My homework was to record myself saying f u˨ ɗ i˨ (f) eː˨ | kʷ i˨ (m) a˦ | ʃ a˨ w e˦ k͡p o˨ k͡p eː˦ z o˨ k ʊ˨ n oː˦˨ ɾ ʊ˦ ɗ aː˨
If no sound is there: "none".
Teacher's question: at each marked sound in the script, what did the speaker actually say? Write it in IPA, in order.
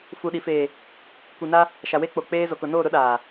f, n

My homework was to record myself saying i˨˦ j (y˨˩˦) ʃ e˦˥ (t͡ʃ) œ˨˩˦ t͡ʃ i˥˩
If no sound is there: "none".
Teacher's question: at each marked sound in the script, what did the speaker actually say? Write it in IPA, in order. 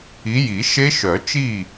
i˨˩˦, ʃ

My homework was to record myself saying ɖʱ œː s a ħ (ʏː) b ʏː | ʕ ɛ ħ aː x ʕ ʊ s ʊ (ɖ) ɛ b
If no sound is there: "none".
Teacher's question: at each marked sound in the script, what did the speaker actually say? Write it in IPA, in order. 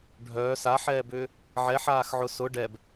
ɛː, ɖ

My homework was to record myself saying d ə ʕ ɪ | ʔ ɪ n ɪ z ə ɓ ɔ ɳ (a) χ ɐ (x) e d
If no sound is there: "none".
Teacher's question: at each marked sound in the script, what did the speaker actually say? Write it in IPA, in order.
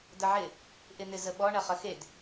ɐ, x

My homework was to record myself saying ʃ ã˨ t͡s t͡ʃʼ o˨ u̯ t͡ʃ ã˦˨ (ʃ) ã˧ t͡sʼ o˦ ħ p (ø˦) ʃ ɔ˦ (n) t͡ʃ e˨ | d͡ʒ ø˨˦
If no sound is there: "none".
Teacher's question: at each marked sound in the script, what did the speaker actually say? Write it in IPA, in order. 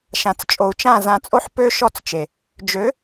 z, ø˦, t͡s

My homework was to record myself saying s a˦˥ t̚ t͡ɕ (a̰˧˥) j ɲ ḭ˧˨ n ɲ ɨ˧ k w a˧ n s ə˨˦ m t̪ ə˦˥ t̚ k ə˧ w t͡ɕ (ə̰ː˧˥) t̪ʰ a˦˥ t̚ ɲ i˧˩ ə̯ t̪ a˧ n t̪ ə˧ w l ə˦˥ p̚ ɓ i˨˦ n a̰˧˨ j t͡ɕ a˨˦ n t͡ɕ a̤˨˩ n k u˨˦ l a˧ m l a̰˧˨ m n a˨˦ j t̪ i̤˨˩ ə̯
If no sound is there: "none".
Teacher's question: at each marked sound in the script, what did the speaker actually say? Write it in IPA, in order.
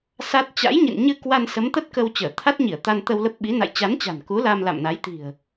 a̰˧˥, əː˧˩

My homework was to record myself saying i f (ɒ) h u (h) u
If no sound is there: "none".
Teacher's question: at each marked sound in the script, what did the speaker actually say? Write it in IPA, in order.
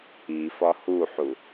ɒ, ħ

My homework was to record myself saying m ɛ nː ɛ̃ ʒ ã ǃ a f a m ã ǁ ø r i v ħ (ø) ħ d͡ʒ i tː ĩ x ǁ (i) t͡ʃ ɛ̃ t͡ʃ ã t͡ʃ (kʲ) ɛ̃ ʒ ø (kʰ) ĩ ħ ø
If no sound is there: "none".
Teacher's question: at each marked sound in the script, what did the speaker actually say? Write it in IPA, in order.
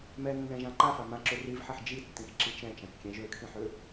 ɛ, i, kʲ, kʰ

